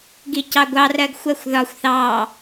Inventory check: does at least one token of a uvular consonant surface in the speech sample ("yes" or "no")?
no